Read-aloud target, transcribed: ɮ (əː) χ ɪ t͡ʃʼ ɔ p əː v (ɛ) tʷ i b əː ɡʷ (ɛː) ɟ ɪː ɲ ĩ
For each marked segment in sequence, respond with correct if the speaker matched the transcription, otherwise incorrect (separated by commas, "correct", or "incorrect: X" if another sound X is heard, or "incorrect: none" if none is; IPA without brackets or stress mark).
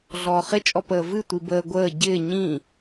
incorrect: ɔː, incorrect: ɨ, incorrect: əː